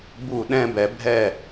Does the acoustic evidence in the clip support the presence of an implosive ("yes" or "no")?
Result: yes